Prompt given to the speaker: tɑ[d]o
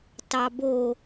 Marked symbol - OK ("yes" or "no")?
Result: no